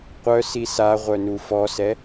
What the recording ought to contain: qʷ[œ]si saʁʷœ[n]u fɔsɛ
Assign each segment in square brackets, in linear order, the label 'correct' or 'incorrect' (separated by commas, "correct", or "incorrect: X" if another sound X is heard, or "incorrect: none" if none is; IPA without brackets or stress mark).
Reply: correct, correct